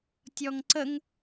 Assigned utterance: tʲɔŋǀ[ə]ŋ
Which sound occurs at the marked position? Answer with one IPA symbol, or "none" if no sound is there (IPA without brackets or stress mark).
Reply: ə